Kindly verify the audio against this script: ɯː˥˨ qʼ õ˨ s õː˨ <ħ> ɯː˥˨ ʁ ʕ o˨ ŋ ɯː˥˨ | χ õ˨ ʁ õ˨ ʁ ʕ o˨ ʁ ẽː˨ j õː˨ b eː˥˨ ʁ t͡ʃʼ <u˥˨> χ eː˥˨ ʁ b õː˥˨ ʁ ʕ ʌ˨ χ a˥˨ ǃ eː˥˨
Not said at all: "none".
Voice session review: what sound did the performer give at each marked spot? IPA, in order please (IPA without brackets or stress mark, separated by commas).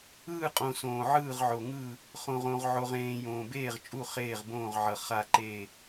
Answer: ʕ, u˥˨